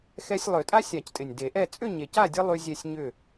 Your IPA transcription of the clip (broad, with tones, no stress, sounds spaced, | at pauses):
x ɛ˦ sʲ lˠ ø˨˩˦ tʼ a˦ sʲ a˨˩˦ c tʼ ɪ˨˩ nʲ d e˨˩˦ ʔ ɛ˥˨ t͡sʼ ʏ˥˨ ɲ e˨˩ c a˥˨ dʲ ə˦ lˠ y˦ zʲ ɛ˥˨ sʲ ɲ ʏ˥˨